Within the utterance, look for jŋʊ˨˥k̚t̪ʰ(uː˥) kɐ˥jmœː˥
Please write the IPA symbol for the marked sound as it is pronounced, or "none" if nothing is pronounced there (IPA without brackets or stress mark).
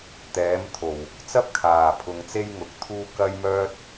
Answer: uː˥